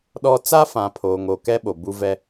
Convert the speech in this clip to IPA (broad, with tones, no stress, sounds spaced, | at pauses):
ɗ ɔ˦ t͡s a˦ f ã˨ pʰ oː˨ ŋ o˨ k ɛ˦ ɓ o˨ b u˦ v ɛ˦